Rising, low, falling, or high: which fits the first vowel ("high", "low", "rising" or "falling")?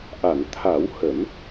low